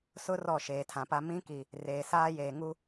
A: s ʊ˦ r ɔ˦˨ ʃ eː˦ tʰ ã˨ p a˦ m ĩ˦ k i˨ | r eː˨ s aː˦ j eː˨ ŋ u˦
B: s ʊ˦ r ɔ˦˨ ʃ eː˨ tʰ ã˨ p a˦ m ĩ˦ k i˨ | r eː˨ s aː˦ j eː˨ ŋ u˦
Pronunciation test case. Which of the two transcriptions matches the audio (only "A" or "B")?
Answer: B